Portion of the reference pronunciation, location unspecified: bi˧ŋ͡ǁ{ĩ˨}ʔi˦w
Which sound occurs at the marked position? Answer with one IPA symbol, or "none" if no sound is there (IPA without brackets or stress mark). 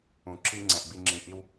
ĩ˨